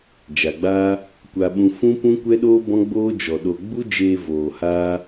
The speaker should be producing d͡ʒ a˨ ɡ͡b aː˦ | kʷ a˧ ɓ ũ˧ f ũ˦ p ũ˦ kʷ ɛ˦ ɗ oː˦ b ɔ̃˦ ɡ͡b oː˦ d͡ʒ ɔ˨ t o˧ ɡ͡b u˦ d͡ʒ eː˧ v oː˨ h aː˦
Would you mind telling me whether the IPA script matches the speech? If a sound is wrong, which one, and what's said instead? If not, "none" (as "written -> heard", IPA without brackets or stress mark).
t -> ɗ